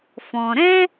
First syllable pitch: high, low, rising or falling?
low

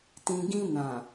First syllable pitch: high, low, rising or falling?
low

